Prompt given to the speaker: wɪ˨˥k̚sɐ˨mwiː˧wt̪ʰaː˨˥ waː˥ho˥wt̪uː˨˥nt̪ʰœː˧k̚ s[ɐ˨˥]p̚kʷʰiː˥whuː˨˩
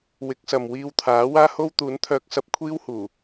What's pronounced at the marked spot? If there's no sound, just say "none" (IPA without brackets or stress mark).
ɐ˧